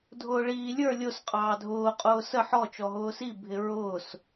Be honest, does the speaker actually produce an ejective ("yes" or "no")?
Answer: yes